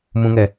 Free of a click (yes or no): yes